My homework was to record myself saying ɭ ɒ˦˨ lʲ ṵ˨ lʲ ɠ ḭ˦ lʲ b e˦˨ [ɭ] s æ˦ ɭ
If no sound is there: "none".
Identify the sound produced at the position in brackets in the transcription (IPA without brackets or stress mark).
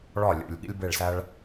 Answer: ɭ